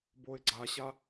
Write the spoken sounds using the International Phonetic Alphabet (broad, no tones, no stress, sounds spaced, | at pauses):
b o ɪ̯ ɡ͡ǀ a ɕ a